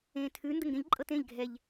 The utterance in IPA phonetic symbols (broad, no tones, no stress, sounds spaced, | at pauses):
ẽ tʰ ʉ n d ə ŋ ɡ ẽ ʎ ǃʼ ɤ t ẽ ʎ ɡʱ ɛ ʎ